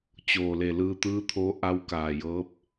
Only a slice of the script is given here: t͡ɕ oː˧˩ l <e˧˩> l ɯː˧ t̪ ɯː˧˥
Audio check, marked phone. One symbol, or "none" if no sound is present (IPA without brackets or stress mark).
e˧˩